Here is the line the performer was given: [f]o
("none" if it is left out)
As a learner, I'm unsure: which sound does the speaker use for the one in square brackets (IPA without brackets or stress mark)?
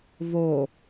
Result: v